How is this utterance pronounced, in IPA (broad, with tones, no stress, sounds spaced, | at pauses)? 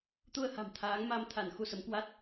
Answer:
t̪ u˧ ə̯ h a̤˨˩ m t̪ʰ aː˨˦ ŋ m a˧ m t̪ʰ a˧˩ n x u˧ s ə˨˦ m k w a˦˥ t̚